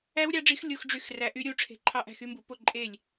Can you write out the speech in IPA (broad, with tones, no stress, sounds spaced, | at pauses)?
æ˦˥ w ɾʲ ɑ˨˥ ɖ͡ʐ i˨˥ x lʲ o˦˥ x ɖ͡ʐ y˥˩ x r æ˨˥ ʔ y˨˥ ɾʲ u˨˥ ʈ͡ʂʰ e̤˨˥ ǃʰ ɑ˦˥ ʔ æ̤˥˩ x y˦˥ m b u˨˥ p o˥˩ ǃʼ e˥˩ lʲ